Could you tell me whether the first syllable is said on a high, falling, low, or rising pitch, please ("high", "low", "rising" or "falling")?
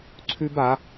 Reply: high